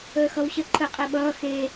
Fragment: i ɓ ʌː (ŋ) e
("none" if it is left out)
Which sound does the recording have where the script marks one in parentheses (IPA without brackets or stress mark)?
x